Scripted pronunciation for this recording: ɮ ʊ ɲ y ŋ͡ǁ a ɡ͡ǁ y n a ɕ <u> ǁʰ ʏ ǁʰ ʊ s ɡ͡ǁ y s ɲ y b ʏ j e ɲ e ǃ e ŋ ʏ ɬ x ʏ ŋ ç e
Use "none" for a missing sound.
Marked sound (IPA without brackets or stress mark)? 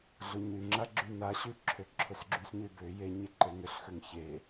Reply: y